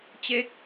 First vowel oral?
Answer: yes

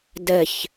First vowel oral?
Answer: yes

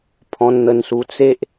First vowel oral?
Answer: no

